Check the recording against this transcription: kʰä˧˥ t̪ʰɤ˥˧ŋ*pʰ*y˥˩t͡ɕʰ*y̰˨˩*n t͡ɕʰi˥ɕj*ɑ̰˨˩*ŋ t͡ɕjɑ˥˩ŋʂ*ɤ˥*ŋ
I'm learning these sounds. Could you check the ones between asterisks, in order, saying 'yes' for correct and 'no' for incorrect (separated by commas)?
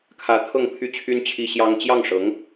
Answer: yes, no, no, no